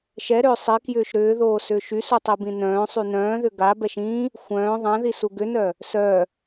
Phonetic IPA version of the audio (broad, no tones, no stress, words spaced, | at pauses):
ʃɛɾʏː sˤikjʏːʃ ɾʏːðoːsʏːʃ ysutˤibĩ nœ̃ːsˤy nœ̃ːðʏ ɡabɛʃ ĩ | xʷœ̃ː ðˤãðisu ɡʏnœ | sœ